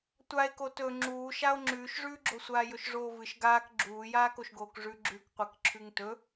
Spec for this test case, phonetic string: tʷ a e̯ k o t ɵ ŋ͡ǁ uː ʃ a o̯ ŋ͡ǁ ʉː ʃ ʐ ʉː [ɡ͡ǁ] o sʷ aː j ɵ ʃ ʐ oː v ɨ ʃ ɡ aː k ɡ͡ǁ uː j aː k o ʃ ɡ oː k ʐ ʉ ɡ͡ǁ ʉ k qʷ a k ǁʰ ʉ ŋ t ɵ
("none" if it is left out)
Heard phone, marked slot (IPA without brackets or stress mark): ɡ͡ǁ